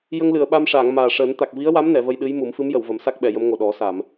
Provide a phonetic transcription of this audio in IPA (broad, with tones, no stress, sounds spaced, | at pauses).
j ə˧ ŋ l ɨ˨˩˨ ə̯ ɓ a˧ m ʂ aː˨˩˨ ŋ m aː˨˩ ʂ əː˨˩˦ n t̪ a˨˩ k̚ v i˧˥ ə̯ w a˧˥ m n ɛ˨˩˨ v ə˧ j ɗ ɨ˧˥ j m u˨˩˦ m f ɨ˧˥ m j ə˨˩˨ w v ə˨˩˦ m s a˦˥ k̚ ɓ ɛ˨˩˨ j ə˧˥ m ŋ o˨˩ ɗ ɔ˨˩˦ s a˨˩˨ m